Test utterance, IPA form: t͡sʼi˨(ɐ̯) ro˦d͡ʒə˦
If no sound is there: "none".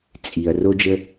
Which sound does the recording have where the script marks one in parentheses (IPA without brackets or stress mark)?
ɐ̯